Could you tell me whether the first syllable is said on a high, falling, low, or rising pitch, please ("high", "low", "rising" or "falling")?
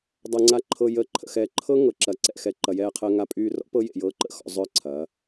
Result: low